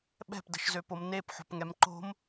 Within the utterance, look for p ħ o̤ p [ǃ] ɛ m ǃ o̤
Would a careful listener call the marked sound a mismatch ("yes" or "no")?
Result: yes